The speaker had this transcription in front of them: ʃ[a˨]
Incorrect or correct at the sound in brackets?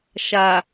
correct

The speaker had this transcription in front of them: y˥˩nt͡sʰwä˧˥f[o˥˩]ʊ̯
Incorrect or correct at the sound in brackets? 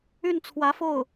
correct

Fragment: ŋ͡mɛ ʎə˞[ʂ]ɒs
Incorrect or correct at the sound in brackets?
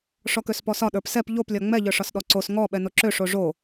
correct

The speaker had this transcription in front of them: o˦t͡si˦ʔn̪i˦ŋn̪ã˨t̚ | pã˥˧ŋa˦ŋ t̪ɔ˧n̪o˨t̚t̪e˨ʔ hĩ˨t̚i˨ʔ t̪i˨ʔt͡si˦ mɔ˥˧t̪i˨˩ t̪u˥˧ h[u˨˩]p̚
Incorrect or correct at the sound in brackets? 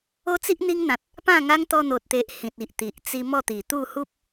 incorrect: u˦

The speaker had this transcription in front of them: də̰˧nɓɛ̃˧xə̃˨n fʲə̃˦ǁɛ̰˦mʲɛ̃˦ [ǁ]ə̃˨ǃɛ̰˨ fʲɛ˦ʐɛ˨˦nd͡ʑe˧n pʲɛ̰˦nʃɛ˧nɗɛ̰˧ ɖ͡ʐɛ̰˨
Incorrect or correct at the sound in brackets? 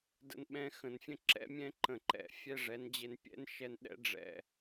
incorrect: ǃ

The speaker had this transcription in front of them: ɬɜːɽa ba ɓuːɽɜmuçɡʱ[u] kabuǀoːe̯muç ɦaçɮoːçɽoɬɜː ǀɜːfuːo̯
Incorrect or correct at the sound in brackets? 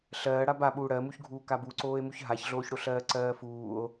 incorrect: uː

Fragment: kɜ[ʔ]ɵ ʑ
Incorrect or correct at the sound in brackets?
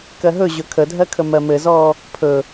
incorrect: ɦ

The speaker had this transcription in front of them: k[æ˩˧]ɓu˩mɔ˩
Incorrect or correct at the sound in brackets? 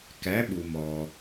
correct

